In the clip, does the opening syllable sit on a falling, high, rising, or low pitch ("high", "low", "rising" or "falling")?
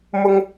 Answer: high